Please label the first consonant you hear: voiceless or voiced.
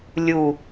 voiced